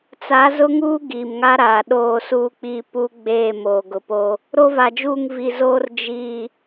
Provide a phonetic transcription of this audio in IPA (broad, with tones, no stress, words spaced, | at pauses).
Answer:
t͡sa˨˦zʊ˦ŋuː˦ ɡi˨mŋa˦ɾaː˨ ɗoː˦˨suː˦k͡piː˦ pu˦ɡ͡beː˦˨ moː˨ɡʊ˨po˦ | ɾo˦va˨d͡ʒuː˦˨ŋ vi˨zoː˦r d͡ʒi˦˨